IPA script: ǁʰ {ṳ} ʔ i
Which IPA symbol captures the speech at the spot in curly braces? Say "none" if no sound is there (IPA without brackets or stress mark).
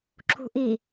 ṳ